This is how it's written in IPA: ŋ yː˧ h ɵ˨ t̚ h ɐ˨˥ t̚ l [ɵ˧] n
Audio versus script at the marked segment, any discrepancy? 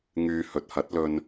no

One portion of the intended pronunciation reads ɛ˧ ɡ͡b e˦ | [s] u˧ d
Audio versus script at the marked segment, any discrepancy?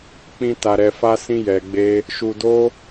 yes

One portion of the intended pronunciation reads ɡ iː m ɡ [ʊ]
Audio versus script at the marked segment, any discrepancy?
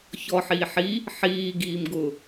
no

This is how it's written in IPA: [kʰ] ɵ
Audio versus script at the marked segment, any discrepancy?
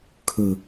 no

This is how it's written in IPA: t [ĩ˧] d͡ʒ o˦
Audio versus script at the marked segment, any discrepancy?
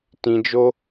no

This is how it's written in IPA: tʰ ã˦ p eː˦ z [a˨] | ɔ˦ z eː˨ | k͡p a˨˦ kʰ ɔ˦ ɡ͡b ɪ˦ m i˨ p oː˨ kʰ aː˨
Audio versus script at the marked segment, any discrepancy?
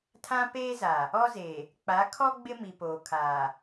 no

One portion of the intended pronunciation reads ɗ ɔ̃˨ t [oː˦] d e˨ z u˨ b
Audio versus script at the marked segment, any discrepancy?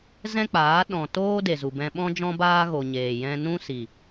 no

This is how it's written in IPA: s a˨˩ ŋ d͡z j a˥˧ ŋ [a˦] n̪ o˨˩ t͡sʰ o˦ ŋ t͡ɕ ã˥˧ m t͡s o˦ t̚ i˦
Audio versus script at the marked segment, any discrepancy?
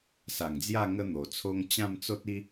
yes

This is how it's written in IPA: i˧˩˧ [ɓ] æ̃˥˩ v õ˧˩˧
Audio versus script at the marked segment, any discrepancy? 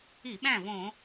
no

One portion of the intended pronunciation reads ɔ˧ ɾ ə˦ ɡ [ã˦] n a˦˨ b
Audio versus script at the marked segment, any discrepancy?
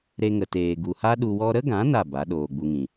yes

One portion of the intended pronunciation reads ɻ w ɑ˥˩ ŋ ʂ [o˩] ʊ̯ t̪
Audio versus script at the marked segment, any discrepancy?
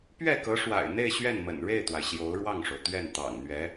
no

